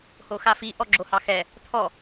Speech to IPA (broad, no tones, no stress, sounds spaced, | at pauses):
h o x a f i ʔ ɔ ɡ͡ǁ o h ɑ x ɛ | t̪ʰ ɔ